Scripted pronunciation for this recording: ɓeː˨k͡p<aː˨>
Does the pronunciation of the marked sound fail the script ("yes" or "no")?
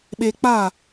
yes